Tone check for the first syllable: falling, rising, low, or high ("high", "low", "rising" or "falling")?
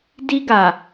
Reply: high